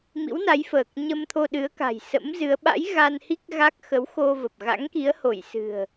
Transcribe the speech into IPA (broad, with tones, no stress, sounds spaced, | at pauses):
m ḭ˧˥ w n a˨˦ j f əː˨˩ k̚ ɲ ə˧ m t̪ʰ o˧ ɗ ɨ˨˦ ə̯ k a̤˨˩ j s ə̰˧˥ m z ɨ˨˦ ə̯ ɓ a̰˧˥ j ɣ a˧ n h i˦˥ k̚ ɣ a˦˥ k̚ x ə˨˦ w x o˧ v ə˨˩ p̚ ɣ a̰˧˥ ŋ k i˨˦ ə̯ h o˧˩ j s ɨ̤˨˩ ə̯